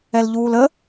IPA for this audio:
ɛ l ʎ uː l ə

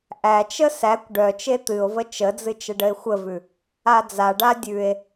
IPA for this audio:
ʔ æ t͡ʃ ə s æ kʷ ɖ œ t͡ʃ e t̪ ɨ o̯ v ə t͡ʃ ə d͡z ɨ t͡ʃ ə ɖ ə e̯ xʷ ə v ʉ | a d͡z a ɖ a dʲ ʉ e̯

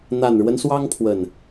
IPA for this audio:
n̪ a˨˩ n ɻ w ə˦ n s w ɑ˦ ŋ pʰ w ə˨˩ n

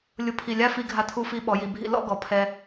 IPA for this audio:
lʲ ʊ˧ pʰ i˧˩ lʲ a˥ f i˧ ɡʱ a˧ tʰ u˧ f i˧ ɓ ɔ˩˧ j i˩˧ bʱ ḭ˧ l ɔ̰˥˧ ɡ ɔ˩˧ pʰ ɛ˧

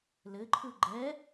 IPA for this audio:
l ɘ ǃʰ ɯ ɡ͡ǃ ɛ

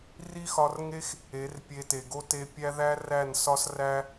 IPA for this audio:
r i˦ x ɒ˧ r ŋ e˦ x | e˨˦ r pʲ e˧ t e˨ ɡ o˦ t e˧ pʲ æ˦ ð æ˦ r æ˦˨ n s ɒ˦ s r æ˦

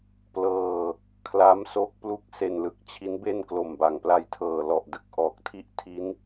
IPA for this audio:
p l ɤː˧ | kʰ l a˦˥ m s o˦˥ k̚ p l u˥˩ k̚ s e˧ n l ɯ˦˥ k̚ t͡ɕʰ i˦˥ n b e˥˩ n k l o˨˩ m b a˨˩ ŋ p l a˧ j tʰ ɤː˨˩ l ɔ˨˩ ʔ d ɯ˨˩ k̚ ʔ ɔː˨˩ k̚ tʰ i˥˩ ʔ tʰ i˦˥ n

